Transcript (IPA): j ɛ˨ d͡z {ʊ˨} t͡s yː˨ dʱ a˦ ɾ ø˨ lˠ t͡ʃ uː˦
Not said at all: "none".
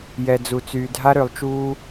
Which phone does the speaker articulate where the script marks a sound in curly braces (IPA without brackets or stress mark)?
u˨